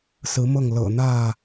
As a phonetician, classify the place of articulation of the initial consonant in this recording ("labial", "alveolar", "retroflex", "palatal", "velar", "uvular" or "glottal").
alveolar